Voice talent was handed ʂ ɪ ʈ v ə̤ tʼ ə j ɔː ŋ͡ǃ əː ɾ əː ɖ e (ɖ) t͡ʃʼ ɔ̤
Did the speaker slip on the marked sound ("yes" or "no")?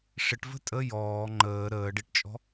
yes